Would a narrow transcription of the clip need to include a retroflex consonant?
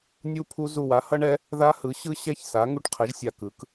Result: yes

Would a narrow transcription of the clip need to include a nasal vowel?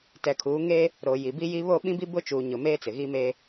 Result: yes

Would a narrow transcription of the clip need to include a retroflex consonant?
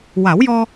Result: no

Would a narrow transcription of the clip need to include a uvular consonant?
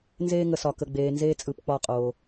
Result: yes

